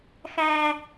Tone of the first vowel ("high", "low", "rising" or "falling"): low